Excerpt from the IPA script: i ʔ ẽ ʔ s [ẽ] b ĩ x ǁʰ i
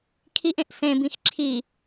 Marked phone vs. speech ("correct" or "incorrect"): correct